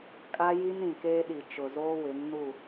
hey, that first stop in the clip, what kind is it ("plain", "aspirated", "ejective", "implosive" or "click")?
ejective